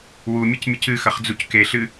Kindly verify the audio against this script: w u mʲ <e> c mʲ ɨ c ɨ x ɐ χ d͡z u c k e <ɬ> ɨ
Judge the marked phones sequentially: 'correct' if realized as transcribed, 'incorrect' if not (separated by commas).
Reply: incorrect, correct